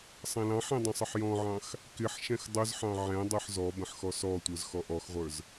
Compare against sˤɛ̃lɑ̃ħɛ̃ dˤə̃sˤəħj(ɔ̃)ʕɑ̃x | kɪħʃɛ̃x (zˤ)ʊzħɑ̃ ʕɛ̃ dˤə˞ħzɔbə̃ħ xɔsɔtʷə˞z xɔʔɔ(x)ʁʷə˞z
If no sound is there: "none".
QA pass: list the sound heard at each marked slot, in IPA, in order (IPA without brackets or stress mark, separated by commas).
ɔ̃, dˤ, x